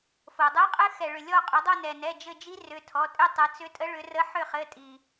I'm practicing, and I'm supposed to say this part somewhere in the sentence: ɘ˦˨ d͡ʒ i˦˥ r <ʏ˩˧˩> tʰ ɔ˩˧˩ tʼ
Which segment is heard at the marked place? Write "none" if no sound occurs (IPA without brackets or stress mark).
ʏ˩˧˩